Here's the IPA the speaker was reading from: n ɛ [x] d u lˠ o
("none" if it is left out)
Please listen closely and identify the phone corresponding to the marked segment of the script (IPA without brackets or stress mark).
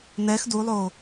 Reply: x